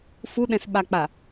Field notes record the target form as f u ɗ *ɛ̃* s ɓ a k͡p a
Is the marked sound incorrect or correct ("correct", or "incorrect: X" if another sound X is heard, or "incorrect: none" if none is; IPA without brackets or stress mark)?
correct